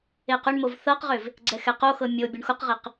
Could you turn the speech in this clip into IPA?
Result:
e q ʏ ɳ m o v θ ɤ q ʁ ʏ v | ɡ͡ǀ ɛ x ɛ q o x ɤ mʲ o bʲ o ɳ x ʊ q ʁ e q

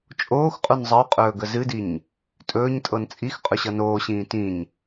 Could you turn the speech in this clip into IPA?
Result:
t͡ʃʼ oː x qʼ u n zˤ ə u̯ qʼ ɵː ɡ ə z ɨ d i ɲ | tʼ ɵː ɲ tʼ ɤ n t͡sʼ i x qʼ ɵ ɕ ʌ n oː ɕ ĩː t ĩ ɲ

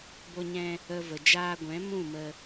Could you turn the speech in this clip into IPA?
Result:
b o˧ ɲ ɛ̃˧ | ə˧ v ə˨ d͡ʒ aː˧ ɡʷ ɛ̃˨˦ m ũ˦˨ m ə˧

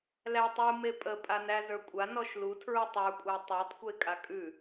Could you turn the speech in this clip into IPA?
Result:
l æ tˤ u m e pʼ ə pʼ a n æ z ə˞ kʷʼ a n ɔ ʃ l u tʰ ɹ u tˤ ə˞ kʷʼ æ tˤ ə˞ tˤ kʷ e kʼ a kʼ ʉ

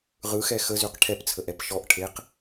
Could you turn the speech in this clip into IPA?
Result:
ʁ ɯ x ɛ x ə z ʉ q ʈʰ ɛ p t͡sʰ ə ʔ ɛ p ʃ ɔ ʔ ʈʰ e q

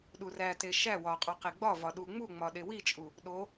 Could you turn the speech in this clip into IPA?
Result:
ɗ u r æ t e ʃ æ w ɒ qʼ ɒ q e ɡ͡b ɒ v ɒ ɗ u ŋ͡m u ŋ͡m ɒ ɗ e w i t͡ʃʼ u | ɗ o

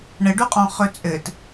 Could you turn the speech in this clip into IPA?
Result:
ɳ ə ɖ u qʼ ɔ̃ χ ɵ t͡sʼ ɘ t

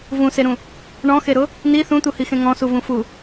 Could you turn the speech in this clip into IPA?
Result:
v ũ s e ɾ ũ | ɳ ɔ̃ x e ɾ ʊ | n i θ ũ t̪ u h i x ẽ ŋ ɔ̃ s u v ũ f u

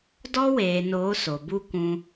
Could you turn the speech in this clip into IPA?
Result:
d ɔ˦ w eː˨ n oː˨˦ s o˨ b u˦ kʷ ũ˧

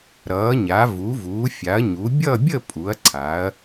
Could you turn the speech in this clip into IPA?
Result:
ɾ ʌː˩˧ ɲ a˩˧ v u˩˧ v uː˩˧ fʲ a˩˧ ɐ̯ ɲ u˩˧ bʲ ʌ˥˧ bʲ ə˥˧ pʼ u˩˧ ɐ̯ ǀʰ a˩˧ ɐ̯

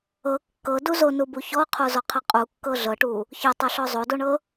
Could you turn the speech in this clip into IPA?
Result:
ɤ kː ɤ d u z o n u b u ç ɔ qʰ o z ɔ qʰ ɤ qʼ u kː ɤ ɮ ɤ ʈ u | ç ɤ tˤ o ɬ ɔ zˤ o d o ɳ ɤ

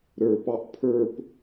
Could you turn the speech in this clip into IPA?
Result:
ɾ ə˞ p ɑ ʔ pʰ ə˞ p

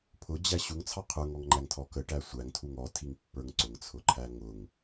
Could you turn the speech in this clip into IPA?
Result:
pʰ ʊ d͡ʑ æ ɕ u ŋ t͡sʰ ɑ qʰ ə˞ ŋ ɔ ŋ ŋ͡ǃ æ ŋ tʰ ɔ k ə ʈ æ sʷ æ ŋ tʰ u ŋ ɔ tʰ i ŋ pː ə˞ ŋ ǀ ʊ ŋ t͡sʰ ʊ ǃʰ æ ŋ ʊ ŋ

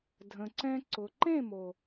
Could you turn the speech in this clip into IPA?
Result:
dʱ ə̃˨ ǀ ɛ̃˧ ǀ ʊ˨ ǃ ẽ˦˨ m o˨

